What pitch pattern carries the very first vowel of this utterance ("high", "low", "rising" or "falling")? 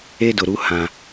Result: high